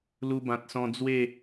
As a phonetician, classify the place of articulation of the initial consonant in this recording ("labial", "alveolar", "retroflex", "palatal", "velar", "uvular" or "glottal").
alveolar